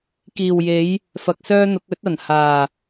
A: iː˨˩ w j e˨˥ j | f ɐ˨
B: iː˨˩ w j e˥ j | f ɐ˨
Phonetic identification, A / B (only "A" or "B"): A